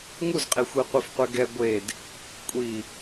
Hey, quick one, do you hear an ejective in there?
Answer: yes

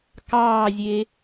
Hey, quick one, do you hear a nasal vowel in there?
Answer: no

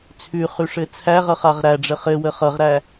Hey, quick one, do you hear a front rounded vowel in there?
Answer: no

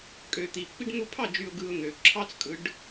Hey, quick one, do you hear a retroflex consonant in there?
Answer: yes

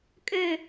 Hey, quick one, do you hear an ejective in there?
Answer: yes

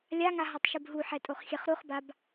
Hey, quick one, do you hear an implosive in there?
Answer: no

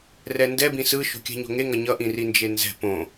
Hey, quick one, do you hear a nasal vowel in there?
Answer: yes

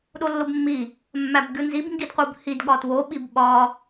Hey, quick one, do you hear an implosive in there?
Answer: yes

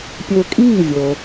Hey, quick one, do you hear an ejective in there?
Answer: yes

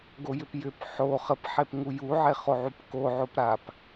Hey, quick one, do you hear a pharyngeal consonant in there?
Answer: yes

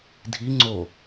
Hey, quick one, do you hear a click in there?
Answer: yes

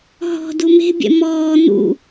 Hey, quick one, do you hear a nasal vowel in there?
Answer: no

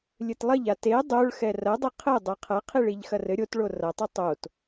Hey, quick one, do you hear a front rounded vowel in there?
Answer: no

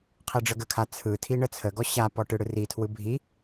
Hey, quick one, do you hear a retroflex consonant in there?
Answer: yes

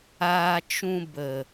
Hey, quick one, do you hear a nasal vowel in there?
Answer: yes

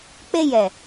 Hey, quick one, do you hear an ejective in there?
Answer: no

